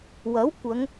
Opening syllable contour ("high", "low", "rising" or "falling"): rising